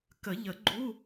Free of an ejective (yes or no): yes